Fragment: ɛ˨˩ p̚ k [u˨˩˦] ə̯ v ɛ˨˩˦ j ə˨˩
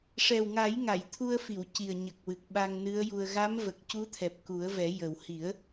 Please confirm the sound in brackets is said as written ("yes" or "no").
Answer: yes